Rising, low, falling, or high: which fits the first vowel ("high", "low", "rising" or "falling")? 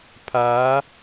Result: rising